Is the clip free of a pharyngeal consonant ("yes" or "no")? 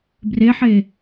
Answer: no